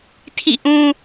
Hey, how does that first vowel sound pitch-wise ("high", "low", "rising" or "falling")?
falling